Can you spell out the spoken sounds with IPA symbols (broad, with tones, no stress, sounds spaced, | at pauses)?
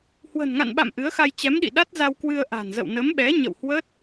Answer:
h w ə̤˨˩ n ŋ a̰˧˨ n ɓ a̰˧˨ m ʔ ɨ˨˦ ə̯ x a˧ j t͡ɕ ɛ˨˦ m ɗ ḭ˧˨ ɗ a˦˥ t̚ z a˧ w k w ɨ˧ ə̯ ʔ a̤˨˩ n z ə̰˧˨ w n ə˨˦ m ɓ ɛ˨˦ ɲ ə̰˧˨ w h w ə˦˥ t̚